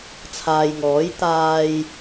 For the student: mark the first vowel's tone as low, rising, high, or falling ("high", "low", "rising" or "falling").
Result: low